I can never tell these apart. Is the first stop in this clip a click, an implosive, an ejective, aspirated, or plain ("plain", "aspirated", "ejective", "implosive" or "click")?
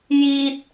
plain